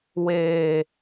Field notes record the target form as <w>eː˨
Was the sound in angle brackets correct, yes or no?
yes